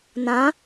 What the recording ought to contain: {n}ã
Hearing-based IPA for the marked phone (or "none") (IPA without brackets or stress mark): n